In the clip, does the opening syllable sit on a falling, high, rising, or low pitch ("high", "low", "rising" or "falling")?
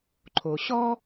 low